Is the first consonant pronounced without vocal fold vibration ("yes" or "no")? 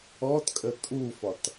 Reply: yes